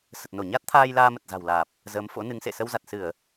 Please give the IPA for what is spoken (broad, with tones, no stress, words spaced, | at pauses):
sə˨˩t̚no˧˩ɲa˦˥t̚t̪ʰaː˧j laː˧mə˨˩t̚za̤˨˩wlaː˨˩p̚ | zəː˨˦mfo̰˧˥nɨ˨˦ŋsḛ˧˨ sə˧wza˨˩t̚sɨ˧˩˨ə̯